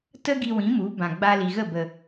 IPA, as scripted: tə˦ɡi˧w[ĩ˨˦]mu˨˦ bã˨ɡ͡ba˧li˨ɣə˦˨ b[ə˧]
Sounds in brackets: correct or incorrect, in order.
correct, incorrect: ə˨

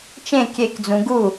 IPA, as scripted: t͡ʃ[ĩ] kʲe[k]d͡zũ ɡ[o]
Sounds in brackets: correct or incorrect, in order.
incorrect: ẽ, correct, incorrect: u

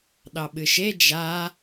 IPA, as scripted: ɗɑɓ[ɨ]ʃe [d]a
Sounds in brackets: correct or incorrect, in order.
correct, incorrect: d͡ʒ

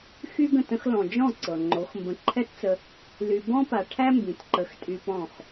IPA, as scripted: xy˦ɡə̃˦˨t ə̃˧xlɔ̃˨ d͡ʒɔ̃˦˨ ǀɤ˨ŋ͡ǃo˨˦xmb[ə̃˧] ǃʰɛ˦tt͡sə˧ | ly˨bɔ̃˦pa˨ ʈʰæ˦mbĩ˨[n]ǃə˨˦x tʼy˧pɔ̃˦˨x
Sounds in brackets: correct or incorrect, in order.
correct, incorrect: t

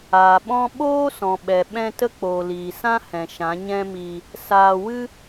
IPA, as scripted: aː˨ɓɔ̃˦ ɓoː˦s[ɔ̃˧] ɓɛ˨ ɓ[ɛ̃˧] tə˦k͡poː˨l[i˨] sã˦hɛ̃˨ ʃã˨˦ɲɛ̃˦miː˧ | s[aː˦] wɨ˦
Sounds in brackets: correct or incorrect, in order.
incorrect: ɔ̃˨, correct, incorrect: iː˨, incorrect: aː˧

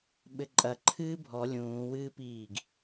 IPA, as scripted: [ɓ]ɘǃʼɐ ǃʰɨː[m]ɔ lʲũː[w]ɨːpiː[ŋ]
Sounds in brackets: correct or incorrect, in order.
correct, incorrect: bʱ, correct, incorrect: ɡ

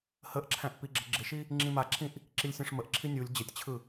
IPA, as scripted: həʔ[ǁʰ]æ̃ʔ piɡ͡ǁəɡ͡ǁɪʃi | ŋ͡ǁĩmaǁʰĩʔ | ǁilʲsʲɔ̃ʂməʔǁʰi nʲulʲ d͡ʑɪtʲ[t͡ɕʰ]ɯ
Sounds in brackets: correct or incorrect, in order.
correct, correct

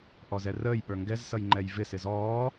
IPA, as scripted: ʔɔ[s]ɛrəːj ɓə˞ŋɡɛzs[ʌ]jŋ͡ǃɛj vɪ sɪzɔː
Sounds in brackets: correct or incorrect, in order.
incorrect: z, correct

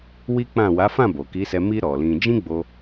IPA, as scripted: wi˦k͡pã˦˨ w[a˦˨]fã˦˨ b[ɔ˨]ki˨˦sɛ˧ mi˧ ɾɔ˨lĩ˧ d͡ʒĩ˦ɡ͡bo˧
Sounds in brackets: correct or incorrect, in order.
incorrect: a˨˦, incorrect: o˨

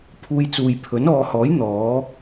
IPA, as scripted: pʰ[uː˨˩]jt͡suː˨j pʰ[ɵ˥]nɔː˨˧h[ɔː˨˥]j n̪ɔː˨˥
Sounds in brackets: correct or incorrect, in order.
incorrect: uː˧, incorrect: ɵ˨˥, correct

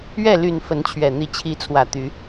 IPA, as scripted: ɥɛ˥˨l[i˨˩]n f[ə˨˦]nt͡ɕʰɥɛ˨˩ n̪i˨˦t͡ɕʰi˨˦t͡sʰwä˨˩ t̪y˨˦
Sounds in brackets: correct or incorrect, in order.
incorrect: y˨˩, correct

